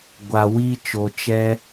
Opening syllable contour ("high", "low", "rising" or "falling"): low